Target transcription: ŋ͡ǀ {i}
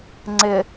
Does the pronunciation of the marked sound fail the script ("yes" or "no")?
yes